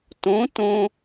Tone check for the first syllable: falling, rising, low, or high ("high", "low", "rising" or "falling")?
rising